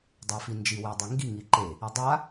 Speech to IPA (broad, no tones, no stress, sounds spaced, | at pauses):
dˤ a f i n d͡ʒ i w e dˤ i ŋ ɡ i ŋ i ǃ e | i dˤ a